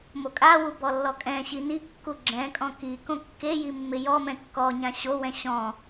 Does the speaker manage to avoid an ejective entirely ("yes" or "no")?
no